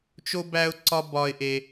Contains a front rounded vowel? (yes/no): no